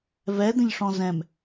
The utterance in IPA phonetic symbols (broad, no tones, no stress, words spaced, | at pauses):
vɛd̪ə̃ʎʂɔ̃ zɛ̃m